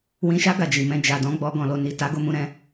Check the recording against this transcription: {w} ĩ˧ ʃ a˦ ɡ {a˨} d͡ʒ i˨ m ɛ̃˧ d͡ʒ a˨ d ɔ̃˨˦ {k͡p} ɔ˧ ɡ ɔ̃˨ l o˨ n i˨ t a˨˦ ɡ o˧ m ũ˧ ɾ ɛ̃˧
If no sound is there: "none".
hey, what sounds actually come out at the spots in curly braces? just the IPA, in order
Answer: w, a˧, ɡ͡b

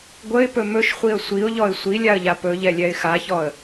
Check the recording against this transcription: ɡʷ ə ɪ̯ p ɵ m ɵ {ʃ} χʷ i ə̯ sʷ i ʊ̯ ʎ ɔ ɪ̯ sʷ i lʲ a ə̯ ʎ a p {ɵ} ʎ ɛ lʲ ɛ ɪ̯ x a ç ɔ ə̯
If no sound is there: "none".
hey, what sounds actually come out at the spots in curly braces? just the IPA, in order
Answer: ʃ, ɵ

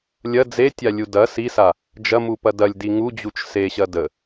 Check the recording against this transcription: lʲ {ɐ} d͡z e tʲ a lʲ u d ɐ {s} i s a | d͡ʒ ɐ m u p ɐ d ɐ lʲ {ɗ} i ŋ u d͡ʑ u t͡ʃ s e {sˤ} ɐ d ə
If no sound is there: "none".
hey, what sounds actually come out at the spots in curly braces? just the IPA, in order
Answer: ɐ, s, d, ɕ

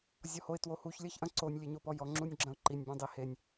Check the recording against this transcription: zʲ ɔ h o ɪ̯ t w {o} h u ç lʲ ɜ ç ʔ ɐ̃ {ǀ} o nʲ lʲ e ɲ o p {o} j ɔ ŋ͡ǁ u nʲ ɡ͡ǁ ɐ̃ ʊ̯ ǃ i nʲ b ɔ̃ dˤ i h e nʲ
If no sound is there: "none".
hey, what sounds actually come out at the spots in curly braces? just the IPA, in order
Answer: o, ǀ, ɔ

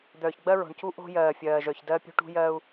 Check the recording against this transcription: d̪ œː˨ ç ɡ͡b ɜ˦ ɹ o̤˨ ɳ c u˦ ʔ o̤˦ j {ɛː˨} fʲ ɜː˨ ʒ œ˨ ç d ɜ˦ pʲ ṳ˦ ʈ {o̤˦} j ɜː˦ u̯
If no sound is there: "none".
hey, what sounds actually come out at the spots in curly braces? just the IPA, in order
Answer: ɜː˨, ṳ˦

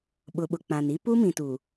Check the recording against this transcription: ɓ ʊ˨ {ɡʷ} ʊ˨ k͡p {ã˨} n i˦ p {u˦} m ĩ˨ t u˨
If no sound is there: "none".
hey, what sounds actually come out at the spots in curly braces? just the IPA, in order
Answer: ɓ, ã˨, u˦

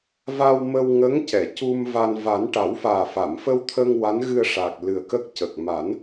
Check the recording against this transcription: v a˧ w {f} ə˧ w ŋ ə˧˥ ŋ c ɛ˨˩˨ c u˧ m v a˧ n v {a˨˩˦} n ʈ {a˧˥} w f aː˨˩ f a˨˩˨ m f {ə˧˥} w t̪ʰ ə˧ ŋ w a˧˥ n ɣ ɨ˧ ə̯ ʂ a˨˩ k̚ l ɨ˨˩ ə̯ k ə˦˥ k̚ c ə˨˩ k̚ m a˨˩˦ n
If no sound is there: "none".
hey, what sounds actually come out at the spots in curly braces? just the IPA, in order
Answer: m, a˨˩˦, a˨˩˦, ə˧

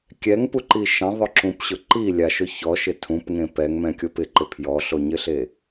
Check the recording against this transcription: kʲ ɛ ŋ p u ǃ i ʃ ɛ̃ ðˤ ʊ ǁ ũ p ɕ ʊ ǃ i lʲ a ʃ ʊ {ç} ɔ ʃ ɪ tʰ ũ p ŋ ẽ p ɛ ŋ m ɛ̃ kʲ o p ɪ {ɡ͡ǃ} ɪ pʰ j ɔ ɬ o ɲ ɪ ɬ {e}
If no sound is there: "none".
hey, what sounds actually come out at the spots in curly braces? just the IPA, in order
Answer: ç, ǃ, e

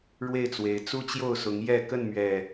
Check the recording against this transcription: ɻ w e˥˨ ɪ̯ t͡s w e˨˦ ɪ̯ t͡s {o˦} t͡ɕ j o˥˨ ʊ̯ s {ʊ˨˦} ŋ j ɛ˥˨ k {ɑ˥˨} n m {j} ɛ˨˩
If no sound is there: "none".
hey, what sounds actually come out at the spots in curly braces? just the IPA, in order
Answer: u˦, ʊ˨˦, ə˥˨, ɥ

